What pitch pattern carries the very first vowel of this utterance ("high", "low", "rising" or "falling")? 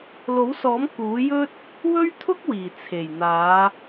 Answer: rising